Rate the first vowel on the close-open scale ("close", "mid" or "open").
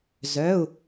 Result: mid